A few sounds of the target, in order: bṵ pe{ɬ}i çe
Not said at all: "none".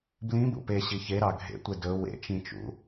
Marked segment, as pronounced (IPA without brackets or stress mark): ɕ